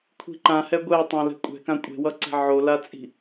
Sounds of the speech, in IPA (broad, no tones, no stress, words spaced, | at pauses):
kʷʰi̤ǃãhɛ ɡʷɛtˤã lɛ̤kʷʼɛ̤kã kʷʼe̤wʌǀɛ̤ ʕolat͡sʼi̤